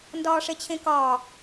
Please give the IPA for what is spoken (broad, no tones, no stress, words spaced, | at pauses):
ndɒːʂet͡ɕʰẽkɒː